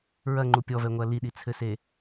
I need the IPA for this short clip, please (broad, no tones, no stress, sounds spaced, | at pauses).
ɹ ɐ ŋ͡ǃ u pʲ ɔ v ɛ ŋʷ ɐ l i ɗ i t͡sʰ ɘ s e